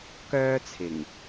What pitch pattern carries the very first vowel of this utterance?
high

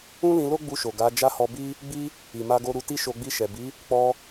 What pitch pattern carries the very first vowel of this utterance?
high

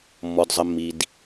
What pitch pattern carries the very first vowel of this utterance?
low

